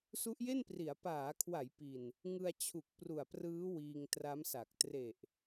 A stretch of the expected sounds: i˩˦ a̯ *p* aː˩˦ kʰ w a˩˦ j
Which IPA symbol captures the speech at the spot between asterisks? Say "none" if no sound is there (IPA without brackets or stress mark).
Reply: p